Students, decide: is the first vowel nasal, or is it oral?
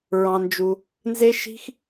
nasal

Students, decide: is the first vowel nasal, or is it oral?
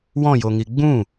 nasal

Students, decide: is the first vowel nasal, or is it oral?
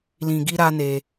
nasal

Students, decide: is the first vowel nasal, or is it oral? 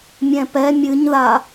nasal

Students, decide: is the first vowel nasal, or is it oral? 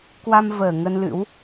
oral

